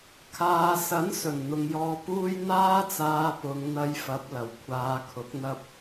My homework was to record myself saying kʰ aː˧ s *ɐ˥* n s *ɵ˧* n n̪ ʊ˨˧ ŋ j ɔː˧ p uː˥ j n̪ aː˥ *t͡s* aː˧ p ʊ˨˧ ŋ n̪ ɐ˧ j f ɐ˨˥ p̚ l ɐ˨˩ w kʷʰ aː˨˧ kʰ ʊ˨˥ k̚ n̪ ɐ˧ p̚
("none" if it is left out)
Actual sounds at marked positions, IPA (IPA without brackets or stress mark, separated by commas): ɐ˨˥, ɵ˨˩, t͡s